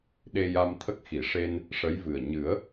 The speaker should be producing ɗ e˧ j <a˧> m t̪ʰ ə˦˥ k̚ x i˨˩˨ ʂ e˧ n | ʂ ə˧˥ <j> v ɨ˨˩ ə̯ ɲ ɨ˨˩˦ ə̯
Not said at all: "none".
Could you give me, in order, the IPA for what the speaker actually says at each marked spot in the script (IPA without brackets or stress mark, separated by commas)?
a˧, j